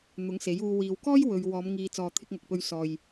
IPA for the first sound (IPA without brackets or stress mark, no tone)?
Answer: n̪